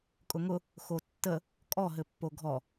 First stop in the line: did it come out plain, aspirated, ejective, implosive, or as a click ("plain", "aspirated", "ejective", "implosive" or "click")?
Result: ejective